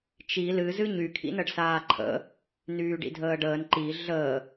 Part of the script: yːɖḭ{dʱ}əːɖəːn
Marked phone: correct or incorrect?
correct